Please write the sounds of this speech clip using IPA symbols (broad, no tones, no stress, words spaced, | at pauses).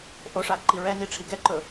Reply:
ʔoʂa ǃiɹɛni ʈ͡ʂʰiɡɛǃɵ